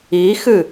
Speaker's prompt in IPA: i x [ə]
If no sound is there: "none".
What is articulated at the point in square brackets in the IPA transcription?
ɨ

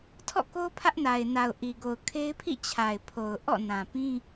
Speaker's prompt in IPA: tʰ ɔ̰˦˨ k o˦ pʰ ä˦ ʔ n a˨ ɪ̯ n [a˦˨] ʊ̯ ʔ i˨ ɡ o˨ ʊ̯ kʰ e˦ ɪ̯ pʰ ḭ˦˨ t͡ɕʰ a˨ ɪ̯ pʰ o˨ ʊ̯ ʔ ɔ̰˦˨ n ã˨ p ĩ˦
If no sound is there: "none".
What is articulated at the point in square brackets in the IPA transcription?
a˨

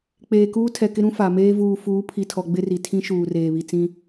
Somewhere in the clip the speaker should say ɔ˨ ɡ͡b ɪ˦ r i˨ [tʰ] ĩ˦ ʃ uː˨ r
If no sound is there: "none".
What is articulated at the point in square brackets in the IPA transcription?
tʰ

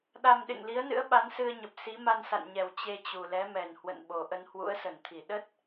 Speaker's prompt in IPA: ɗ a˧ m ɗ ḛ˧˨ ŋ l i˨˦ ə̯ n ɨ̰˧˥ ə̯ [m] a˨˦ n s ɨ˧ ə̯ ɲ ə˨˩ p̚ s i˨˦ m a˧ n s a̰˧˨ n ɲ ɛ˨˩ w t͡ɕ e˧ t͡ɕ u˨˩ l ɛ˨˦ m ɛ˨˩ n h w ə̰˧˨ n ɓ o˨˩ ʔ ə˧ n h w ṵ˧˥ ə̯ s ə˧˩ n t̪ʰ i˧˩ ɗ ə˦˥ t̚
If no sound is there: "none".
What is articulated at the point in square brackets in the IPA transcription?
ɓ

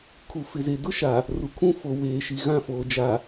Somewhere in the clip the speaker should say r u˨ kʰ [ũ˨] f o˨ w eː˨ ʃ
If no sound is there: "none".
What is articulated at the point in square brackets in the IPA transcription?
ũ˦˨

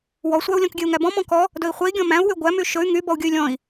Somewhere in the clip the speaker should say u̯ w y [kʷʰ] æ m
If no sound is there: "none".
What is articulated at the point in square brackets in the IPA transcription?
ɡʷ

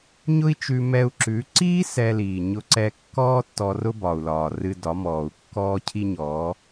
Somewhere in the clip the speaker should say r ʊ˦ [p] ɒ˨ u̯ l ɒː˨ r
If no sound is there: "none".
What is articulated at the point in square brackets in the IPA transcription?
b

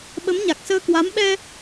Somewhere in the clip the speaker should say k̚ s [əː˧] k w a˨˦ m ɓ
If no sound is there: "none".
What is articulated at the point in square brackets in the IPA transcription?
əː˧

